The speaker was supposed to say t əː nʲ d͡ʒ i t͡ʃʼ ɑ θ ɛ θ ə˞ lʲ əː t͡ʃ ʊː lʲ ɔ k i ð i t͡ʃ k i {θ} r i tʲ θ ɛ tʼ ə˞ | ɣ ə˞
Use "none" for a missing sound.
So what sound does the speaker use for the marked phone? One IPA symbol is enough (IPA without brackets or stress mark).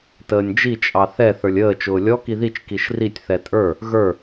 ʃ